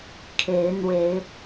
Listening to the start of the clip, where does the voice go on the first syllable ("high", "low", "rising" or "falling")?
rising